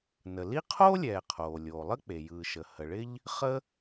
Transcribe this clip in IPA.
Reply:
n ə˩ l i˥ qʰ oː˥ lʲ ɛː˩ qʰ oː˩ lʲ oː˩ lˠ ə˥ k͡p e˩ j ɯː˩ ʃ ə˩ h ə˩ ɭ ɪ˥ ʎ | χ ə˥

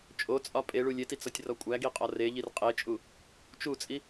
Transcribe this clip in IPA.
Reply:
t͡ʃʼ o t͡sʼ ɒ pʼ e ɭ u lʲ e t i t͡s ɒ tʲ r ɒ kʷʼ æ ɡ i qʼ ɒ r e ʎ i r qʼ e t͡ʃʼ u | t͡ʃ u t͡sʼ i

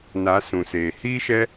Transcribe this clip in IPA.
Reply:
n a˨˦ s ũ˨ s eː˨ h iː˦ ʃ ɛ˦

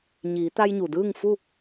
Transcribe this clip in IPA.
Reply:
ɲ iː˩˧ t̪ a˧ j ɲ u˩ d ɯː˥˨ ŋ f u˥˨

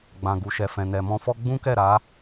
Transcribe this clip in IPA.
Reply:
ɡ͡b ã˨ ɡ u˨ ʃ ɛ˨ f ɛ̃˨ n ɛ˨ m ɔ̃˧ f ɔ˦ ɡ͡b ũ˦ k ɛ˦˨ ɾ a˨˦

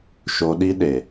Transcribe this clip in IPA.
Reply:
ʃ o˧ ɗ i˦ ɗ e˨

